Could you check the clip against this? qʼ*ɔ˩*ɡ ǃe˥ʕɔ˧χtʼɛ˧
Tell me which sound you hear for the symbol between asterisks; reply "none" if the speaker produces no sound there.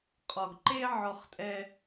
ɔ˩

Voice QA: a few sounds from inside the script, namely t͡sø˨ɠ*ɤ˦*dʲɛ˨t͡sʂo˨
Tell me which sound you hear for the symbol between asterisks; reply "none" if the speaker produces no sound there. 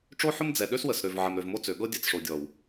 ɤ˦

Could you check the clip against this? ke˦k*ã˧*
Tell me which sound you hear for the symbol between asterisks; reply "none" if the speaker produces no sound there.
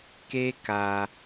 a˧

